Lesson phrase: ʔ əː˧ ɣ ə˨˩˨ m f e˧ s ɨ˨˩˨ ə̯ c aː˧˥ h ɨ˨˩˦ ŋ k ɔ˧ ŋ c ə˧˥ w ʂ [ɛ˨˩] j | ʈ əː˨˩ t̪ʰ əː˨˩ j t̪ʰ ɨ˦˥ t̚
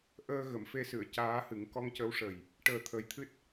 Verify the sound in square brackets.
incorrect: ə˨˩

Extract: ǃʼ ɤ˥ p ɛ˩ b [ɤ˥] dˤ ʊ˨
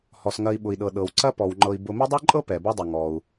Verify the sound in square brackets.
correct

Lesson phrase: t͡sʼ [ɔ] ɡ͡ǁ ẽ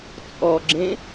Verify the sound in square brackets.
correct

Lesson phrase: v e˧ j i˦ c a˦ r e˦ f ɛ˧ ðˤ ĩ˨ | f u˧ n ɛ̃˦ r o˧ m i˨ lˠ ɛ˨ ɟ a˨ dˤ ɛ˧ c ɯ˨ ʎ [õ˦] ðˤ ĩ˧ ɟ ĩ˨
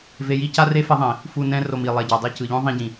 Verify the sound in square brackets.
correct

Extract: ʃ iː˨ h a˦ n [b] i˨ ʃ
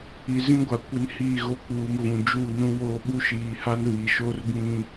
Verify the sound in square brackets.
incorrect: β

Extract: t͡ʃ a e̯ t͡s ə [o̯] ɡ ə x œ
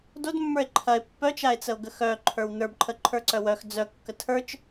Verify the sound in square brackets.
correct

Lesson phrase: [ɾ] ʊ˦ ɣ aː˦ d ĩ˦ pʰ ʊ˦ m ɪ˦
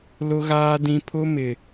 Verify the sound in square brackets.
incorrect: l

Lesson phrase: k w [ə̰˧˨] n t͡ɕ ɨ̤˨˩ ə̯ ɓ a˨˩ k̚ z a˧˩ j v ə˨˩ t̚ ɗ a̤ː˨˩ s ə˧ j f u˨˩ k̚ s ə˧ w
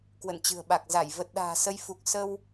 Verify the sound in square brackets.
correct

